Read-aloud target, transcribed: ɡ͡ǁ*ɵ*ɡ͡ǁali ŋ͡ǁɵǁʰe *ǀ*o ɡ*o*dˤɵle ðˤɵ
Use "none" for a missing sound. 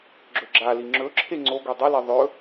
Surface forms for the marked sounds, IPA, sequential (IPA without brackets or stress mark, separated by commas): ɵ, ŋ͡ǀ, u